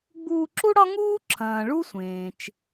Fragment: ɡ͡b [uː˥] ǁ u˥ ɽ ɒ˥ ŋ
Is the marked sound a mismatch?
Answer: yes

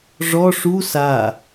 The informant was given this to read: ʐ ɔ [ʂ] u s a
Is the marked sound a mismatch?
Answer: no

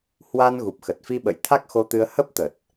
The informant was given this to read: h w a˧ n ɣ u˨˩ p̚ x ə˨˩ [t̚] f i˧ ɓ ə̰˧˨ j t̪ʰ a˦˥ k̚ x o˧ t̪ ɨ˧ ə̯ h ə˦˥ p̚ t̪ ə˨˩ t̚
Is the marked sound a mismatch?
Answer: no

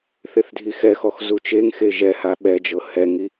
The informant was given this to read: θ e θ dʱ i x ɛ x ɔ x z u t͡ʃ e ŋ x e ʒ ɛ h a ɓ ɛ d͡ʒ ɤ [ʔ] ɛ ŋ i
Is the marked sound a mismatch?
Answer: yes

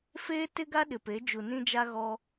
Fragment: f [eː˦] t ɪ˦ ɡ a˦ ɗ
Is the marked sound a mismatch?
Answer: no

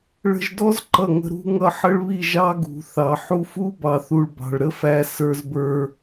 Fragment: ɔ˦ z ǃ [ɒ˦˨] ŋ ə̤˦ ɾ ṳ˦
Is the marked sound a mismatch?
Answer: yes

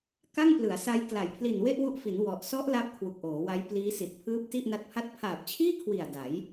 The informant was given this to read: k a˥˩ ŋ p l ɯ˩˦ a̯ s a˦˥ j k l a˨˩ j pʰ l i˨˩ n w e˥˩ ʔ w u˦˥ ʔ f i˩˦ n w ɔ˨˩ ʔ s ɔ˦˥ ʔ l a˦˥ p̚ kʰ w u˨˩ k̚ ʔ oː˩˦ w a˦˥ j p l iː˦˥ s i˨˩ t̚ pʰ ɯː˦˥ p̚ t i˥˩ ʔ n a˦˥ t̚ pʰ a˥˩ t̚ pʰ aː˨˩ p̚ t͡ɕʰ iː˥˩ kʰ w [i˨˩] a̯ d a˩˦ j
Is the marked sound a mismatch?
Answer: no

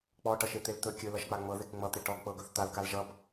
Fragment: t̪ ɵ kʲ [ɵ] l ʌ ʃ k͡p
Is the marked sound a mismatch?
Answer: no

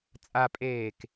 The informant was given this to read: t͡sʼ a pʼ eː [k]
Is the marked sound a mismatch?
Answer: no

